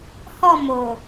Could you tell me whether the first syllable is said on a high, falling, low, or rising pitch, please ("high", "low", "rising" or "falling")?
falling